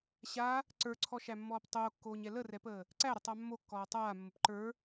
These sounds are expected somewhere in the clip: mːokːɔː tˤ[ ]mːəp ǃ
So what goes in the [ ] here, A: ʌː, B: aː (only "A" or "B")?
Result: B